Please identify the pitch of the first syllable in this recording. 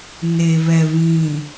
low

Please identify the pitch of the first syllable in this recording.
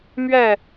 falling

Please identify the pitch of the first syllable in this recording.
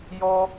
high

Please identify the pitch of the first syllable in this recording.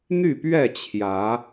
falling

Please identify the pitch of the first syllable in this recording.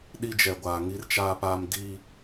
high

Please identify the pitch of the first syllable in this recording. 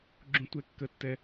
high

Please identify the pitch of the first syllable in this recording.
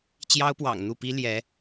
high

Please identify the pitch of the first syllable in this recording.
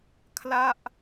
falling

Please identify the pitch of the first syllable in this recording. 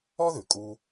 high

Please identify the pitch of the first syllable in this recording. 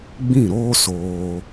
falling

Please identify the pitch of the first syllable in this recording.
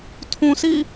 low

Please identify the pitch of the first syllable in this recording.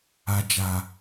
low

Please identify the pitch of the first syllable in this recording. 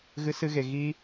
high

